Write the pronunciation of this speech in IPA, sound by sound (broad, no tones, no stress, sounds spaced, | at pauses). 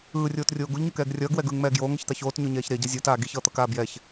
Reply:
ɯː rʲ oː t rʲ oː ɡ u ʎ ɲ u k ɛː ɡ rʲ ʌː ɡ w ɛ ɡ ɯː ŋ m ɛː ɡ j oː ŋ ʌ ç t̪ a ç oː t ɲ o ɲ ɛː ç ɾ e ɟ ʌ zʲ o t aː ɡ i ç ʌː t̪ ʌ k aː b j ɛ ç